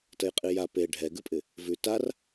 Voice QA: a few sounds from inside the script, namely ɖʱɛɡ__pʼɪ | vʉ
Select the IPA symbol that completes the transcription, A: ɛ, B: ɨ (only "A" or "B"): B